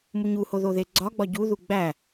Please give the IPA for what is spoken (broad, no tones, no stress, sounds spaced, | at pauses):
m u ɲ u h o ð o ð e ɡ͡ǀ ɒ ɡ͡b ɒ ɟ u ð u ɡ͡b æ